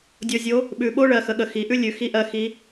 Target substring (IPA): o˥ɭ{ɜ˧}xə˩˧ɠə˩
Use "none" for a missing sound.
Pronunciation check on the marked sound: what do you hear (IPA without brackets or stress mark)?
ɜ˩˧